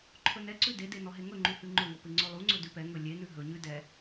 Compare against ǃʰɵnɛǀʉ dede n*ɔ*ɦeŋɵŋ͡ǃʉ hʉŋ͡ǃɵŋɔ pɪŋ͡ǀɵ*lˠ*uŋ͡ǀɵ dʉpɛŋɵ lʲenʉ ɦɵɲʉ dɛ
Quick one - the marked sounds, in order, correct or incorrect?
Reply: correct, correct

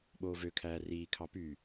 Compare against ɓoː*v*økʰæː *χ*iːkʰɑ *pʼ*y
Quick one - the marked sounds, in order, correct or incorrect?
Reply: correct, incorrect: r, incorrect: p

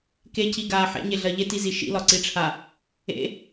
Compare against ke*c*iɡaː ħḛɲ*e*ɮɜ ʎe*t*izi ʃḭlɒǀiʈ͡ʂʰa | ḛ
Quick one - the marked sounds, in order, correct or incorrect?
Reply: correct, correct, correct

